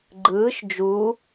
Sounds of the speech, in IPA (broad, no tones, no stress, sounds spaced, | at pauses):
ɡ͡ǃ ɯː ʃ d͡ʒ u